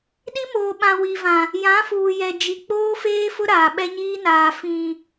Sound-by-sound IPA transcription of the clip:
ɗi˦moː˨ ɓã˨ wi˨vã˨ | jã˨˦fuː˨jɛ˨ d͡ʒi˨k͡poː˦feː˦fʊ˦ ɾaː˨ɓɛ˦ɲiː˦naː˨ fĩ˨

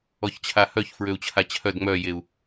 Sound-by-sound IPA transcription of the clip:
ɔçt͡ɕʰahœç fɹøu̯t͡ɕʰat͡ɕʰœd ŋ͡mœjeu̯

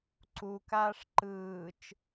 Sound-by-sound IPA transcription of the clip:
ǀukaːʂ ǃɯːt͡ʃ

